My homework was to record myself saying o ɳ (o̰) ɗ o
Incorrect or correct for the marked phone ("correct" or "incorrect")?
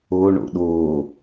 correct